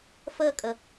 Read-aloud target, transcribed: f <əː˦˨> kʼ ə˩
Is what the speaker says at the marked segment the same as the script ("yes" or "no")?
yes